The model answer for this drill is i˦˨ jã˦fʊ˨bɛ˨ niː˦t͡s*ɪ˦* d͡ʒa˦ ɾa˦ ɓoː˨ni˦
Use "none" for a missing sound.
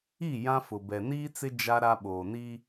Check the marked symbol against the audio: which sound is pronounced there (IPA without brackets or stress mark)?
ɪ˦